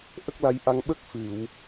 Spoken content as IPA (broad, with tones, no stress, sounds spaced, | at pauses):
ʔ ə˦˥ k̚ l a˧ j ʔ a˧ ŋ ɓ ə˦˥ k̚ f ɨ˨˩˨ w